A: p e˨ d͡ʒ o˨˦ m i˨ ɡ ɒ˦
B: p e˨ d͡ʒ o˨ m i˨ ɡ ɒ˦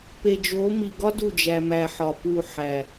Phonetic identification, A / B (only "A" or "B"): A